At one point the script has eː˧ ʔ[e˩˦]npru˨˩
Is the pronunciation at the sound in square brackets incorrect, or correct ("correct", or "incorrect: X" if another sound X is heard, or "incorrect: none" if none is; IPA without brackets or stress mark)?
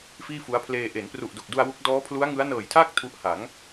correct